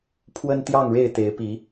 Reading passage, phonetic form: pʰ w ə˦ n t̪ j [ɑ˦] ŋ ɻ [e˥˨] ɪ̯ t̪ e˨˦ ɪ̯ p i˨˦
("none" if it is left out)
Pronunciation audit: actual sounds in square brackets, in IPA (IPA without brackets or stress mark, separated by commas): ɑ˥˨, e˥˨